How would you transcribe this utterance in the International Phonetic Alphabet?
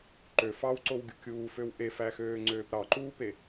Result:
ǃ ø f ɑ w ǀ o w ɡʲ u kʲ uː f ø w ʔ e f æ x øː ŋ͡ǀ øː p ɾ ɑ ǃ uː p e

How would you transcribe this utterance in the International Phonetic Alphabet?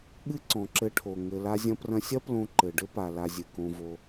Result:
ɠ ɨ˦ ǀ ɔ̃˨ ǁ ɘ˧ ʈʰ o˨ ŋ ɘ˧ l a˧ zʲ ɐ̃˧ p r ɐ̃˧ sʲ ɐ˦ p l õ˧ ǃ ɘ˨ ɖ ɘ˦ p a˨ l a˧ zʲ ɨ˨ k õ˧ v o˧

